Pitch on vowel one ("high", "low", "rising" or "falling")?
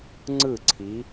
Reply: falling